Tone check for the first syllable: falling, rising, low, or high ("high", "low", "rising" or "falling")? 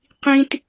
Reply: high